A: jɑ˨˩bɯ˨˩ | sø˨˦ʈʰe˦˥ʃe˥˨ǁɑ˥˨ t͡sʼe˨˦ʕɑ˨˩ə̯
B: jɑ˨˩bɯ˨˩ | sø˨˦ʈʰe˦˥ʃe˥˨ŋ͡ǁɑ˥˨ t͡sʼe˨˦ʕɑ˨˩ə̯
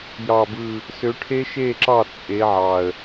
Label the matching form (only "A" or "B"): A